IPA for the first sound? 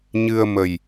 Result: ɲ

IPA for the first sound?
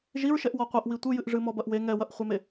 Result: ʒ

